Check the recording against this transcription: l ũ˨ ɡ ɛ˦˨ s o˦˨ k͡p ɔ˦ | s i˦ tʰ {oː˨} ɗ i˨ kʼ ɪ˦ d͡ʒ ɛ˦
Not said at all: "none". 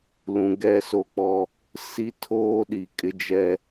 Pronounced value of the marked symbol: oː˦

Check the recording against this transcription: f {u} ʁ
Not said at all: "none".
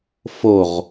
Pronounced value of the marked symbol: o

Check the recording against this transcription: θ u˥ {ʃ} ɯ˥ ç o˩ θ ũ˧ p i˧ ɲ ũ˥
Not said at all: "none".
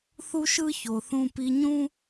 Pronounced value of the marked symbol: ʃ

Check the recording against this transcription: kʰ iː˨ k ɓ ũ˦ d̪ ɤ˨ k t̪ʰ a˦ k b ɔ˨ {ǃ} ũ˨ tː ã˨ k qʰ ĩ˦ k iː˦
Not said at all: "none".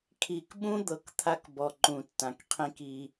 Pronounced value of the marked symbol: ǃ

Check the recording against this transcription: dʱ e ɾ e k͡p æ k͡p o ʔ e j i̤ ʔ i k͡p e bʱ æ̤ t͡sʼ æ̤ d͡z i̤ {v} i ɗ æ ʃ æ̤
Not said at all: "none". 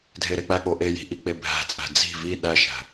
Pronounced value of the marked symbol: v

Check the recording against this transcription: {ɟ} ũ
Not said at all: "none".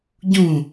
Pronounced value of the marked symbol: ɟ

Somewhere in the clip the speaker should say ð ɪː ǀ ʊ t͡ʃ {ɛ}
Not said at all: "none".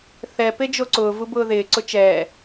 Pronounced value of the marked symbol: ɛː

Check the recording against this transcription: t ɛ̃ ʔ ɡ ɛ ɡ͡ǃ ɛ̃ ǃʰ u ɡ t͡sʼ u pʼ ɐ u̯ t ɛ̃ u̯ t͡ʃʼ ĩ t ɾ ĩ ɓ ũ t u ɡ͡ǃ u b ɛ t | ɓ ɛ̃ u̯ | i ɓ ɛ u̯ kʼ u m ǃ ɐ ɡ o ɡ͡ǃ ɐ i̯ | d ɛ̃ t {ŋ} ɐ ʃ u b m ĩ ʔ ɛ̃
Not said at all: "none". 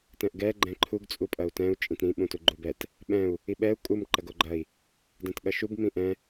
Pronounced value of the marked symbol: ɠ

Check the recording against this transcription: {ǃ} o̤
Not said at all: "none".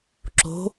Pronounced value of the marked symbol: ǁ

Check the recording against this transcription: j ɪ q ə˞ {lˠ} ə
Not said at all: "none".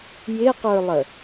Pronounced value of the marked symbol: lˠ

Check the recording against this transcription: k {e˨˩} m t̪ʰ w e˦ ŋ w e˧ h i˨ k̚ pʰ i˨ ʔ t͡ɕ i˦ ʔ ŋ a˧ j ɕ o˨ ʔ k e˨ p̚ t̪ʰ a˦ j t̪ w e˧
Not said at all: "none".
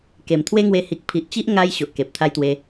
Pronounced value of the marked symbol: e˨˩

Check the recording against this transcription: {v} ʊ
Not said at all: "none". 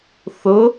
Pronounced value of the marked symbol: θ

